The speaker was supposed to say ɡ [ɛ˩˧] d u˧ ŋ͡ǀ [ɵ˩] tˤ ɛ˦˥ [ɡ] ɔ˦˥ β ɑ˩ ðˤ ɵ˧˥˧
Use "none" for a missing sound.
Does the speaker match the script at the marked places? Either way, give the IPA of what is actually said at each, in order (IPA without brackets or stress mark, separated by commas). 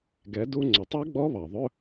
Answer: ɛ˩˧, ɵ˩, ɡ͡b